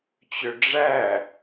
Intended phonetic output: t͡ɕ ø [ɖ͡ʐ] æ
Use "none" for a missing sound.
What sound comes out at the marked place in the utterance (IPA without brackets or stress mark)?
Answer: ɖ͡ʐ